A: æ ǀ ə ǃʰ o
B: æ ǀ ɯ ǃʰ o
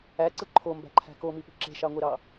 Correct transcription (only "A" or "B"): B